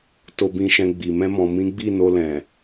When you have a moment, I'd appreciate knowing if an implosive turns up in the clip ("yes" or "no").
no